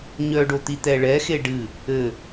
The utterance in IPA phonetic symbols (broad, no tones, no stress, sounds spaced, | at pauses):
ɲ œ ɖ o t̪ i t̪ ɛ ɭ ɛ x e ɖ ɨ | ɘ